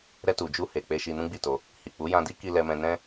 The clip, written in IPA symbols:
ɾ ɛ˧ t u˨ d͡ʒ u˧ h e˨ k͡p e˧ ʃ i˧ n ũ˦ ɡ͡b i˦˨ t o˧ | h i˨ k͡p u˨˦ j ã˧ d i˦ k i˧ l ɛ˧ m ɛ̃˧ n ɛ̃˦

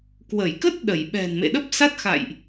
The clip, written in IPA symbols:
k w ə˧˩ j k ə˦˥ t̚ ɗ ə˧˩ j ɓ ɛ̤˨˩ n m ḛ˧˨ ɗ ə˦˥ p̚ s a˦˥ t̚ x a̰˧˨ j ʔ

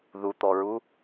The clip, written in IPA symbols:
ð u t̪ ɔ ɹ u

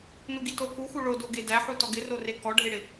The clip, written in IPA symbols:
n u ɡ i t o k u x u ɭ o d o ɡ e d æ ħ u t ɔ ɡ ɪ r o r e k ɔ ɖʱ e ɽ ɪ

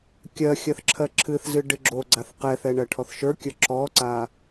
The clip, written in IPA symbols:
kʲ ɜ xʲ ɜ θ ǁʰ ɜ ǁʰ ɨ θ z ɨ ɖ ɨ ɡ͡ǁ o ɡ͡ǀ a θ q ɛ θ ɛ ɳ ɜ ʈʰ ɔ θ ʃ ə˞ kʲ ə˞ ǁ ɔ ǀ a

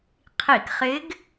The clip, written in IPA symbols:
qʰ i˧˩˧ k χ ɪ˧˥ ɡ

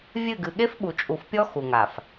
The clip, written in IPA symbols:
vʲ ɨ˦˨ ɡ ɨ˨ ɠ e˦ f ɓ u˨ t͡ʃʼ u˨ f pʲ ɔ˦ x u˨ ŋ a˨ f

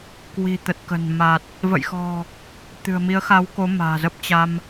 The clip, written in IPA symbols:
k w i̤˨˩ t̪ ə˨˩ t̚ k ə̤˨˩ n m a˨˩ t̚ | v ə̰˧˨ j x ɔ̤˨˩ | t̪ ɨ̤˨˩ ə̯ m i˨˦ ə̯ x a˨˦ w k o˨˦ m a̤ː˨˩ z ə˦˥ p̚ t͡ɕ a˧ m

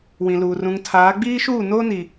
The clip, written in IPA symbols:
w ĩ˨ l uː˨ r ũ˨ ŋ tʰ aː˨˦ ɡ͡b iː˦ ʃ uː˦˨ n oː˦ n i˨

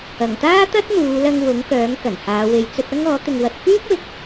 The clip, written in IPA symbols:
ɐ˨˩ ŋ t̪ aː˥ t̪ ɐ˥ t̚ n̪ uː˨˧ l ɐ˧ ŋ w ʊ˨˥ ŋ k œː˨˥ ŋ k ɐ˨˩ n h aː˨˧ w e˨ j t͡s ɵ˧ t̚ ɐ˥ ŋ ɔː˨˥ t̪ ɪ˨ ŋ w ɐ˨ t̚ f yː˥ k̚ w ɪ˨˥ k̚

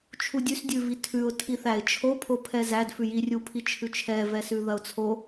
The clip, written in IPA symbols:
t͡ʃʰ u dʲ ʉ s dʲ ʉ v i tʰ ʉ ʊ̯ tʰ i θ æ ɪ̯ t͡ʃʰ o pʰ o pʰ ɛ z æ d f ʉ j i rʲ u pʰ i t͡ʃʰ ʉ t͡ʃʰ ɛ v ɛ s ʉ ð ɐ ʊ̯ t͡sʰ o

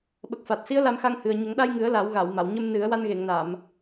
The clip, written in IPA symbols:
ɓ ə˨˩ k̚ f a˨˩ t̚ s i˧˥ ə̯ l a˧ m x a˧ ŋ h ɨ˨˩ ə̯ ɲ ə˨˩˦ ŋ ɗ a˧ j ŋ ɨ˨˩˦ ə̯ l a˨˩˦ w ɣ a˨˩˨ w m a˨˩˨ w ɲ ə˧ m n ɨ˨˩˦ ə̯ w a˧ n ɣ e˨˩˨ ŋ n a˨˩˨ m

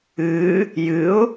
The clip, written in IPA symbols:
ɨ | j ɨ ʊ̯

